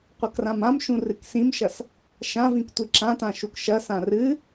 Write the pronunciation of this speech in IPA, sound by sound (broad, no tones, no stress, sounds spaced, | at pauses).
qʷ ɐ k r ã m ã m ʃ ũ r ɨ k s ĩ m ʃ ɐ s | ʃ ã v ĩ k tʷ i ǁ ã t ã ʃ u k ʃ ɐ s ã r ɨ